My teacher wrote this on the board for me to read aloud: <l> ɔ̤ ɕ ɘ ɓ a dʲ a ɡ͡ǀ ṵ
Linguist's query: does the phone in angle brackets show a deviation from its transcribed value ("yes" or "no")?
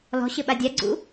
no